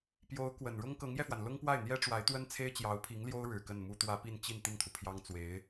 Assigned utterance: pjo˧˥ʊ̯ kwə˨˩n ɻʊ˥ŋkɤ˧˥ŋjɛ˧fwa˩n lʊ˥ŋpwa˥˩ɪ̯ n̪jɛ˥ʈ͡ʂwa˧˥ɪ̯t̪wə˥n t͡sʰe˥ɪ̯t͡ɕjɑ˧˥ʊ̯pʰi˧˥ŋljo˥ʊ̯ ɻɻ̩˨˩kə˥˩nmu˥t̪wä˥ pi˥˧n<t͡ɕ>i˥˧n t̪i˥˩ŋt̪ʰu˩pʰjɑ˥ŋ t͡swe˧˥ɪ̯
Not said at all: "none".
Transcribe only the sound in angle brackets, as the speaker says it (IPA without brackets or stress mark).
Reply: t͡ɕ